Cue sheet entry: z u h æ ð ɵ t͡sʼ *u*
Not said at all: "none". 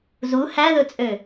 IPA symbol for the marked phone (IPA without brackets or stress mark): ø